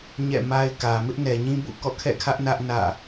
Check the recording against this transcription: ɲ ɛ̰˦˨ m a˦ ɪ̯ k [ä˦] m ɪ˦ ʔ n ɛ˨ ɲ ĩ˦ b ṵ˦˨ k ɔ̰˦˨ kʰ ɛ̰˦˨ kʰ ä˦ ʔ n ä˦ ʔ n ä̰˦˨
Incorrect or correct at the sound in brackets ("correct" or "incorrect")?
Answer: incorrect